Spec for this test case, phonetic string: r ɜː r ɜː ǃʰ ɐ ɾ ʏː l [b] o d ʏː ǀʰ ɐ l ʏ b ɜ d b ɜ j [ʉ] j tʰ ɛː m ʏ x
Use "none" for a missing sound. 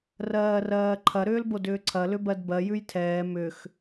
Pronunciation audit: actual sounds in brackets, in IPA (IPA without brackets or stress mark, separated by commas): b, ʉ